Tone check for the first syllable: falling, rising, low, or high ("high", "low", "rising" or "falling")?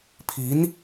rising